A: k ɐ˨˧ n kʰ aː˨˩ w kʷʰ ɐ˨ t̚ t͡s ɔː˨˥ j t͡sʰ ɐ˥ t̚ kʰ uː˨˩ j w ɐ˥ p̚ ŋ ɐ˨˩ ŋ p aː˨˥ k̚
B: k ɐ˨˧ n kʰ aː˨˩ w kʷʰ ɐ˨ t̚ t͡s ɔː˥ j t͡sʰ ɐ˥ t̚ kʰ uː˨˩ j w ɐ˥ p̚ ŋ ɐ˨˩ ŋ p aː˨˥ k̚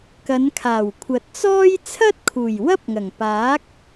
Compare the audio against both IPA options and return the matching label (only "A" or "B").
B